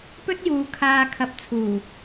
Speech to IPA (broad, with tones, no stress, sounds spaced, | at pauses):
p ɵ˥ t̚ j uː˨˧ kʰ aː˨ kʰ ɐ˨˥ p̚ t͡sʰ uː˨˩